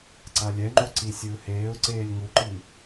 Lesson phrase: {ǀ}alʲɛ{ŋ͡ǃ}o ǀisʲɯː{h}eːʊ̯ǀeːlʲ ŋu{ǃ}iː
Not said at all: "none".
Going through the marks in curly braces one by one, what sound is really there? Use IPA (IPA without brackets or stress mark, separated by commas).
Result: ǀ, ŋ͡ǃ, h, ǃ